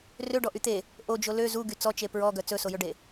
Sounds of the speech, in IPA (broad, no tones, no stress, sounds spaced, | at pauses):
r ø ɖ ɔ ʔ y t̪ e | ʔ o d͡ʒ o l ø z u ɡ y t͡s ɔ t͡ʃ e p ɹ ɔ ɡ œ t͡s ɵ s o j ɵ ɖ e